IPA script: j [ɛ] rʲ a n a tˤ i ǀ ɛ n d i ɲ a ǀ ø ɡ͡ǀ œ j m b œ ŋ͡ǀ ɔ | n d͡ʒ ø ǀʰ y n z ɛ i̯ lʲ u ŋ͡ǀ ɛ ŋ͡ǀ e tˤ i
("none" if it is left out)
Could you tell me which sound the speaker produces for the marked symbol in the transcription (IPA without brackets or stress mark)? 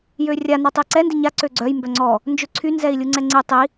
ø